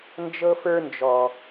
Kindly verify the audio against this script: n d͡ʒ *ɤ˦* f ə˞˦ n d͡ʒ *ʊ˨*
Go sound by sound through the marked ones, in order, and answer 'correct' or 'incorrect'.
correct, incorrect: ɔ˨

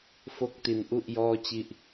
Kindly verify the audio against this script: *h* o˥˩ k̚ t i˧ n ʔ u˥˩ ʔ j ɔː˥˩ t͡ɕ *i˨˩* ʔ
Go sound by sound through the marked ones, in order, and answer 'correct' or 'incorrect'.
incorrect: f, incorrect: i˥˩

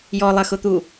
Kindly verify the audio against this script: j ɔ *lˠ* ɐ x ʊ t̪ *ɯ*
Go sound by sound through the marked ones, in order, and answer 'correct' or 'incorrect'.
correct, incorrect: u

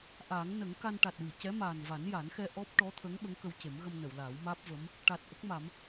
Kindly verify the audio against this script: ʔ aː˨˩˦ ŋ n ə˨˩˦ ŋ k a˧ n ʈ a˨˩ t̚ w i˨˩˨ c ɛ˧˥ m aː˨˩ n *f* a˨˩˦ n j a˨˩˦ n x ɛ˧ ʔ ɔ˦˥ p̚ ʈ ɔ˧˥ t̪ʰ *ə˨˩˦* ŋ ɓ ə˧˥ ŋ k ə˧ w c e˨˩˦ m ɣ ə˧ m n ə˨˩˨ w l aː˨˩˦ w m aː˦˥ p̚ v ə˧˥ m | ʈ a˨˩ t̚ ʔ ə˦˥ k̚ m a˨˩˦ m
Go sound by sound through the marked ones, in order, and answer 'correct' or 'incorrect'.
incorrect: v, incorrect: ə˧˥

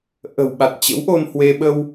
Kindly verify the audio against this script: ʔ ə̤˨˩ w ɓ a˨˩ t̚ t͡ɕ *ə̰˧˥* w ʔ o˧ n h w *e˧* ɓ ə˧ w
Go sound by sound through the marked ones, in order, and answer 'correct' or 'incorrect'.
correct, correct

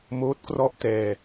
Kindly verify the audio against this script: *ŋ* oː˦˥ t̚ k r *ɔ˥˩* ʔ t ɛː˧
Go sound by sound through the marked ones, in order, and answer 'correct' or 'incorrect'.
incorrect: m, correct

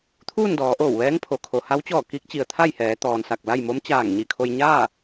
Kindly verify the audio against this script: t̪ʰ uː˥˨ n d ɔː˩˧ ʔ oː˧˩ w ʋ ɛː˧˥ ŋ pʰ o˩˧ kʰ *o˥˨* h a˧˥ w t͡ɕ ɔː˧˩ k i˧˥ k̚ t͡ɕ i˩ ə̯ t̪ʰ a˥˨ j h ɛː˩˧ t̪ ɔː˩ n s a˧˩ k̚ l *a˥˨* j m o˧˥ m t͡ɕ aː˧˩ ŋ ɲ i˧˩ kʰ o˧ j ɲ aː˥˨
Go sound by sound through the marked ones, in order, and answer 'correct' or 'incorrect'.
incorrect: o˩, correct

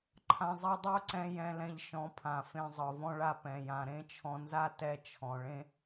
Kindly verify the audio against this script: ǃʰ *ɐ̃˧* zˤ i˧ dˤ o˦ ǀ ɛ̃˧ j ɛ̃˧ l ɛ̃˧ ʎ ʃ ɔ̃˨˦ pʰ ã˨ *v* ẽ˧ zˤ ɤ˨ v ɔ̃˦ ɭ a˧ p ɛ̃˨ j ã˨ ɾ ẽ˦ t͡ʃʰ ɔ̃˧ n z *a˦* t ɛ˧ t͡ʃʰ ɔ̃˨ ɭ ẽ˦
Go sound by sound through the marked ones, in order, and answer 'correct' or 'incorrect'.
incorrect: ã˧, incorrect: f, correct

